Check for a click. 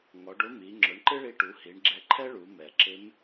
present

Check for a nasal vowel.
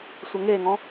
present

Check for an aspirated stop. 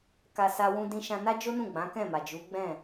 absent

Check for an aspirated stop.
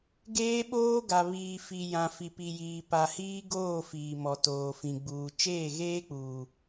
absent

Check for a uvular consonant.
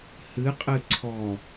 present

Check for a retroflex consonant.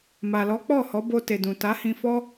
absent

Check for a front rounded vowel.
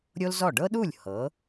absent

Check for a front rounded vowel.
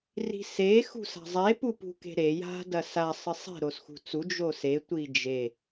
absent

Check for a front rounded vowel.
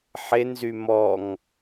present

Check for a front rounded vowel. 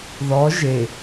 absent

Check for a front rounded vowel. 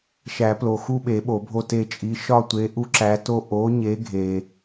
absent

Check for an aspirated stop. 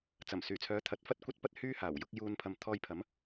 present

